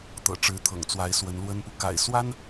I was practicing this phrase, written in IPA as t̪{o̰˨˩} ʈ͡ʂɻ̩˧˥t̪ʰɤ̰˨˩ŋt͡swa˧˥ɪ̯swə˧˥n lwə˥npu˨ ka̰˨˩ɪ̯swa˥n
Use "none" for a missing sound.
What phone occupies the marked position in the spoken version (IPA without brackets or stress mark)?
ɤ̰˨˩